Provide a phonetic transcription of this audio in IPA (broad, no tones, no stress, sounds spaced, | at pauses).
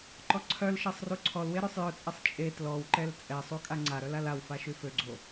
ǃ ɔ ǀʰ œ l ʃ e sˤ r u ǀʰ ɔ l w e ɾ ø sˤ j œ t͡sʼ ɛ sˤ t͡ʃʼ e t l ɔ w ǃ ɛ l t͡sʼ ɛ sˤ u kʼ a ŋ͡ǀ a ɾ œ l a l a w f a ʃ y f ø ɡ͡ǀ o